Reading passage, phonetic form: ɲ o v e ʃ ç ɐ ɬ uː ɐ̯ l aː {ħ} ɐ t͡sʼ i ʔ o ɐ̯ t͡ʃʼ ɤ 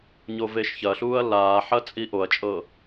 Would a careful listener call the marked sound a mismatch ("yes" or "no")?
no